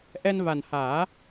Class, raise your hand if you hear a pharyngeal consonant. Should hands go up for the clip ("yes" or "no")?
no